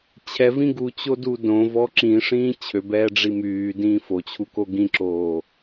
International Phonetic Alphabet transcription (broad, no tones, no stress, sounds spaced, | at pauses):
t͡ɕʰ ɛ v ĩ ɡ u t͡ɕ o d u d õ v ɔ ǁ ĩ ʂ ĩː t͡ɕʰ ø b ɛː ɖ͡ʐ i m yː d ĩː f o t͡ɕʰ u k o ɡ ĩ ǁ oː